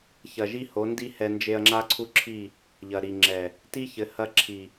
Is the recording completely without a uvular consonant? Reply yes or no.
yes